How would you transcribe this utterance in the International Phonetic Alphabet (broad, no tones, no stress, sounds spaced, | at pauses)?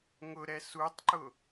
ŋ ʊ ɾ ɛ s u tˤ ǃ ʊ